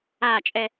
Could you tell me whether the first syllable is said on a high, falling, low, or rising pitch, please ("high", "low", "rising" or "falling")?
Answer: falling